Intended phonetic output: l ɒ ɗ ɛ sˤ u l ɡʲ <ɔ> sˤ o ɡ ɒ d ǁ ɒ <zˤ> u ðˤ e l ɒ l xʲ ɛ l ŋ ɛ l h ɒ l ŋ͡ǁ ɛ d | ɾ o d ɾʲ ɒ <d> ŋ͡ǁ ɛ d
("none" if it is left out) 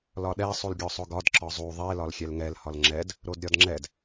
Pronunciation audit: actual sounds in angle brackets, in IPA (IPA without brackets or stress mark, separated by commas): ɔ, zˤ, d